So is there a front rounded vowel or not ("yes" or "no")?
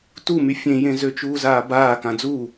yes